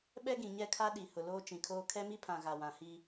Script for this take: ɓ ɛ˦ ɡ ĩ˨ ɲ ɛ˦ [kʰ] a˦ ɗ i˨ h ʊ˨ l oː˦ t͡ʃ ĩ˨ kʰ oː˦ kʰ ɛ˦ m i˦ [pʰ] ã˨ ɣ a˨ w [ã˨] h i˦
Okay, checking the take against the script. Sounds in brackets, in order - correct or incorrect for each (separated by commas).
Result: correct, correct, correct